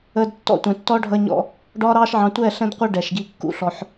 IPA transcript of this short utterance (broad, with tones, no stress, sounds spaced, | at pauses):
əː˧ d tː ɔ̰˦ tʷ ɛ̃˨ tː ɔ˦ ɖʱ ʌ˧ ɲ ɔ̰˧ | ɖ ɒː˦ ɾ ɑː˦ ʃ ʕ ɑ̃˧ tʷ ɛ˦˨ ɬ ɛ̃˦ d qʷ ɜ˦ ɖ ɛ˨ ʃ ɡ i˧ kː ṵ˦ ɬ ɔ˧ ħ